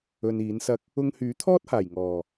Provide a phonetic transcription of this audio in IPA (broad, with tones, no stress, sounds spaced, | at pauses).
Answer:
ɵ˧ n iː˨˥ n s ɐ˥ k̚ | ʊ˧ ŋ h yː˨˥ t̪ʰ ɔː˥ t̚ h aː˨˩ j ŋ ɔː˨˩